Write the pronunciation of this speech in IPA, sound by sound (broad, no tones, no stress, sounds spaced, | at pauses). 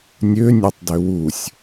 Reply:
nʲ ø nʲ ø tˤ d ø w u sʲ